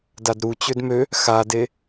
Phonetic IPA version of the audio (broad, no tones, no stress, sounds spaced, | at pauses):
d a d ɾ u t͡ɕ ø d m ø | x a d e